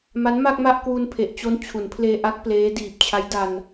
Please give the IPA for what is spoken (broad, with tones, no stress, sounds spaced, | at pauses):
m a˦˥ n m a˥˩ k̚ m a˥˩ ʔ k w u˧ n pʰ e˨˩ ʔ t͡ɕ o˦˥ n t͡ɕʰ u˩˦ n pʰ l eː˧ ʔ a˦˥ k̚ p l eː˦˥ d iː˨˩ p̚ t͡ɕʰ a˦˥ j d a˧ n